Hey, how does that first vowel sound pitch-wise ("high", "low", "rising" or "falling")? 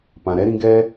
low